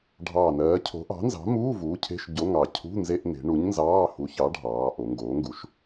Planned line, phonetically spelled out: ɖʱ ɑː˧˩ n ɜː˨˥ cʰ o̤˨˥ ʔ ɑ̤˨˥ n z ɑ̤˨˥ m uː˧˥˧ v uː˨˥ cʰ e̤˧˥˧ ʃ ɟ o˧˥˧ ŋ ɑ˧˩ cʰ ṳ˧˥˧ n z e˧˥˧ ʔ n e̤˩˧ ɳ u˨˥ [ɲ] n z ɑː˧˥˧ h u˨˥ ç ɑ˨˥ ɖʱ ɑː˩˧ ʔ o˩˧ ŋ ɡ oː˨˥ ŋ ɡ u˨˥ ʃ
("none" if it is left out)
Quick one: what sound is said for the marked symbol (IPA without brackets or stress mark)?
ɲ